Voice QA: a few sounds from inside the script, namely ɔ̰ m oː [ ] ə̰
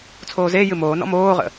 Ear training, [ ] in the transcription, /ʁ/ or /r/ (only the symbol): ʁ